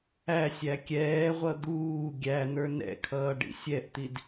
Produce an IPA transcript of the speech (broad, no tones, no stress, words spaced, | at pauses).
æsʲ ækʲɛːʁʷʌ d̪uː ɡʲæn̪ə˞ nɛ̰kʰʌː ɖḭsʲɛʔt̪id